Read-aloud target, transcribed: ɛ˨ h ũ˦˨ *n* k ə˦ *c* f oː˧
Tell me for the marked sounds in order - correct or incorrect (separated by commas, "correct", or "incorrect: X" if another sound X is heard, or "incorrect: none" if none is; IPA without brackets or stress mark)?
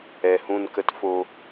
correct, incorrect: t